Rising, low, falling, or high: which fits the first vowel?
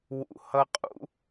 low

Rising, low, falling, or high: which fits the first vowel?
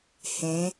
rising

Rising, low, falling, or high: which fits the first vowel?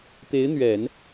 rising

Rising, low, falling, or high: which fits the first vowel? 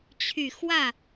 low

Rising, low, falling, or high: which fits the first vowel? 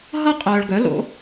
high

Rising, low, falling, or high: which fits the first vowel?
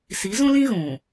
rising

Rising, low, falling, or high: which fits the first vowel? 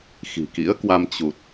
low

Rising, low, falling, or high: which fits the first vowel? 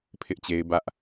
high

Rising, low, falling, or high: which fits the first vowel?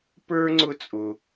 high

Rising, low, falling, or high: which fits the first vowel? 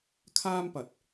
high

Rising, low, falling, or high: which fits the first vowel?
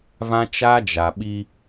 high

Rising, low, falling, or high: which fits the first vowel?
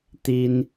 high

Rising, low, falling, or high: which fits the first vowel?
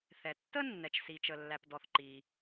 low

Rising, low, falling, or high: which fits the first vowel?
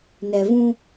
low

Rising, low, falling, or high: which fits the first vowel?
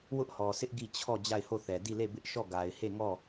high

